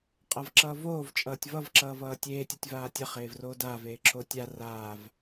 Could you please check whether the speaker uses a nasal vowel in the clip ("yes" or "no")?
no